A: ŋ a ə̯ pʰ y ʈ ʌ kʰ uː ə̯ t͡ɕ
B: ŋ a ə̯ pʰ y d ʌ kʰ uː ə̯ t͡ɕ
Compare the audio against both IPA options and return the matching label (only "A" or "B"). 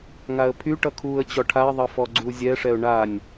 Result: A